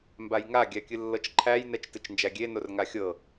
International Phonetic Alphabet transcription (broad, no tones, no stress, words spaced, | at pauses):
mbajŋa ɡʲækʲɨlːɤt͡ʃǃʰæj nɛt͡ʃtɨt͡ʃnd͡ʒæɡʲe norŋaxʲɤ